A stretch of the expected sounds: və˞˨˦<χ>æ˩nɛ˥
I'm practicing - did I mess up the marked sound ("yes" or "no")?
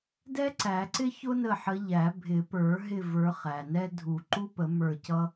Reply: no